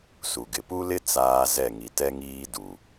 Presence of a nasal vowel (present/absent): absent